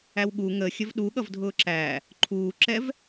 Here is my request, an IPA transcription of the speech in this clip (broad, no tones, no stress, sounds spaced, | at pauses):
æ w ɠ u ŋ ə xʲ ə v ɗ u ɠ ʌ v dʱ ʊː ǁ æ | ǃʰ uː ǁ ɛ v